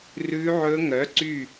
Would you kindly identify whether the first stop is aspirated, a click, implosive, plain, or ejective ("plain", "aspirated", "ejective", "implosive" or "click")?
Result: click